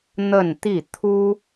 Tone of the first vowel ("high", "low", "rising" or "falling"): falling